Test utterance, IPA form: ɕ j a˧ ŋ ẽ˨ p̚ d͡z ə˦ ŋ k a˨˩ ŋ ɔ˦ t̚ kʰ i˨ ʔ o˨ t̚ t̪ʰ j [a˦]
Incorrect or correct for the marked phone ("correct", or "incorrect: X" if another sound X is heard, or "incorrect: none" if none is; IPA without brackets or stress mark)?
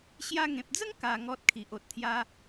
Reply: correct